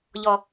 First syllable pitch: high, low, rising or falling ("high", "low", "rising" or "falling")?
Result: low